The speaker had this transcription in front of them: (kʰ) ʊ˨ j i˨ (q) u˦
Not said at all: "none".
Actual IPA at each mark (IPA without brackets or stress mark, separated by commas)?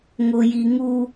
ŋ, ŋ